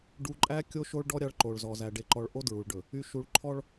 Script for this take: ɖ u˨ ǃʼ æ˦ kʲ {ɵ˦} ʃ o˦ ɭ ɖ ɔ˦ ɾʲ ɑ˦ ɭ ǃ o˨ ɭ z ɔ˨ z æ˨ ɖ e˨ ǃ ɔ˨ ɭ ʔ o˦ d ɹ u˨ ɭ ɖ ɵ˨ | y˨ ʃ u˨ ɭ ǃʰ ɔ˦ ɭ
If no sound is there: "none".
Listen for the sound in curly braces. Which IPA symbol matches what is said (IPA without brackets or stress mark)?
o˦